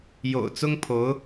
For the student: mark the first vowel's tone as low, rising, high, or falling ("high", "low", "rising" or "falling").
low